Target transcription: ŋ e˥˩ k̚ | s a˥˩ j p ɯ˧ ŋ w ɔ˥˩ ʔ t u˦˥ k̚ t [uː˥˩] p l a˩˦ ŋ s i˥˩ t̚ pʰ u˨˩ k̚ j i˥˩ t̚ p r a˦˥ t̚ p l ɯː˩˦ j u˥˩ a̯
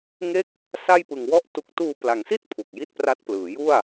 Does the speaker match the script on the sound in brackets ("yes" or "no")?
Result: no